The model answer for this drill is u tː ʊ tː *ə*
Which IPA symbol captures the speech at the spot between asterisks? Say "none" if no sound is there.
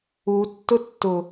ʊ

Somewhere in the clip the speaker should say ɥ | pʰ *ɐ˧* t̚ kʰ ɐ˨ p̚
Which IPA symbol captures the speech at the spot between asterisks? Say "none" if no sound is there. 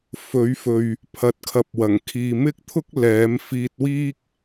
ɐ˨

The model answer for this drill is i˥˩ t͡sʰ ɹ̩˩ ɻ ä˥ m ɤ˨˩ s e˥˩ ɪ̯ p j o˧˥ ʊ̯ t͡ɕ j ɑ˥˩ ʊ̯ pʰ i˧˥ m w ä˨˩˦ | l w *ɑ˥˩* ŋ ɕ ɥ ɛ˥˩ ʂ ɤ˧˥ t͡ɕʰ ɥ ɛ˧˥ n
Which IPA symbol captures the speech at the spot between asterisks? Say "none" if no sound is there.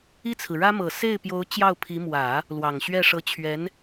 ɑ˨˩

